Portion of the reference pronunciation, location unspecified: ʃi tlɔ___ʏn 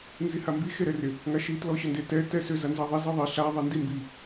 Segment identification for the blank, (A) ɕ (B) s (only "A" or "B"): A